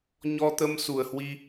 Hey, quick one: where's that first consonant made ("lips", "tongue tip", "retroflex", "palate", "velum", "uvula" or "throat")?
palate